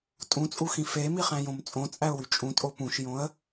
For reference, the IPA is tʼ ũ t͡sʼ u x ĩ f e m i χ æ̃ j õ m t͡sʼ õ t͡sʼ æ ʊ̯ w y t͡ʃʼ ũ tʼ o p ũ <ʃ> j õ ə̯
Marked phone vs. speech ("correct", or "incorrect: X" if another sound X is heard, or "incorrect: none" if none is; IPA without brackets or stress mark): correct